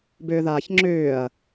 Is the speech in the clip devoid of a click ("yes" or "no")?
no